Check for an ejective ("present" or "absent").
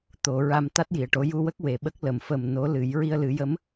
absent